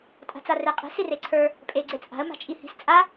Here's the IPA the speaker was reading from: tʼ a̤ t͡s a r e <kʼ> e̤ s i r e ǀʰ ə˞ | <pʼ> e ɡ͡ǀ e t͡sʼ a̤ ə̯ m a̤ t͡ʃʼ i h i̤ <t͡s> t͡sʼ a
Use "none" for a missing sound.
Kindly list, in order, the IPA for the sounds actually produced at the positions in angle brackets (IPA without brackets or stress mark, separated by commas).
qʼ, pʼ, s